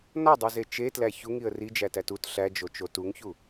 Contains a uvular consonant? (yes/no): no